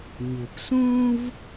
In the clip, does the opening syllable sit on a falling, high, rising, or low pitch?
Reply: low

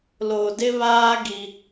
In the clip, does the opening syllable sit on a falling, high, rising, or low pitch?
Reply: low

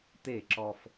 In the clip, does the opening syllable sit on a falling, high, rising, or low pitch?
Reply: falling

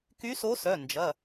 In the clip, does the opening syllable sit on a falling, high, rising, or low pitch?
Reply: rising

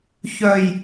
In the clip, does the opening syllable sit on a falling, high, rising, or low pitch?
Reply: low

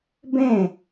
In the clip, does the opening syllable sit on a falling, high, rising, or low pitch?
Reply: falling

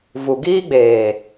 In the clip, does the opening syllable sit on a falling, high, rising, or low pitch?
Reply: low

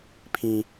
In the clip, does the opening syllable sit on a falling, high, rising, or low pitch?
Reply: high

